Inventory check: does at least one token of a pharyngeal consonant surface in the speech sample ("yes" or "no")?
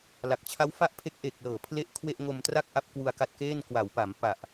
no